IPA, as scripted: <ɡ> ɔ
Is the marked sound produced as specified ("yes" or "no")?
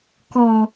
no